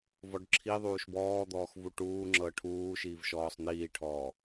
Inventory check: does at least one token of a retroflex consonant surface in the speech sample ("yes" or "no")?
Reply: yes